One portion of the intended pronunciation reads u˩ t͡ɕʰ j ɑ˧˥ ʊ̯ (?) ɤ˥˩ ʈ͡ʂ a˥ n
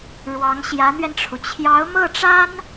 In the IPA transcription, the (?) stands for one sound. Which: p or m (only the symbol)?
m